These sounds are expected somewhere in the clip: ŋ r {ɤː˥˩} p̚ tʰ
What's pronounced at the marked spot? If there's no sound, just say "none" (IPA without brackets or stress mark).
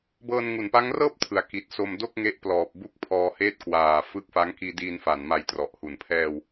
ɤː˥˩